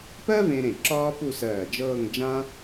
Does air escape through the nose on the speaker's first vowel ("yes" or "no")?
no